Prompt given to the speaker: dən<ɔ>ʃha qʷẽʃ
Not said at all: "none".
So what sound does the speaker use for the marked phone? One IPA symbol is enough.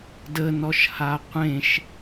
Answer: ɔ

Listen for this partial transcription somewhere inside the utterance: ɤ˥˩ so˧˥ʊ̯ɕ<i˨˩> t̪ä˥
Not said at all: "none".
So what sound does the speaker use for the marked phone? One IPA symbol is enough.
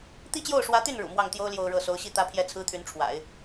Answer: i˥˩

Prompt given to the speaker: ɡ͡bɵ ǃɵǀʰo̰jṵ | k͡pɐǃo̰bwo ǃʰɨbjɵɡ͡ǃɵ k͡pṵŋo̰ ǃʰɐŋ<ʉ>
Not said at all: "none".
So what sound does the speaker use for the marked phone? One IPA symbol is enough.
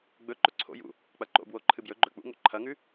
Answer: ʉ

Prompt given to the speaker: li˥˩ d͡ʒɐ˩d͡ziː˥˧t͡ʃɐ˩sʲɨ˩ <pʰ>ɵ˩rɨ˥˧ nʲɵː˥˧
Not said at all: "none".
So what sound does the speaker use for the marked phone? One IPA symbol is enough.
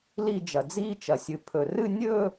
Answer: pʰ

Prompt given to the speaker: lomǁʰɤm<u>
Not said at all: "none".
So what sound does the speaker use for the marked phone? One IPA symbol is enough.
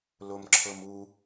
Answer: u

